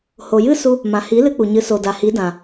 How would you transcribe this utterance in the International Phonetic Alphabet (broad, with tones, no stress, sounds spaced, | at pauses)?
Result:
h o˨ j ɨ˦ s u˧ | m ã˨ h i˨˦ l ɨ˧ k͡p u˨ ɲ ɨ˨˦ s o˨ d a˨ h i˨˦ d ã˨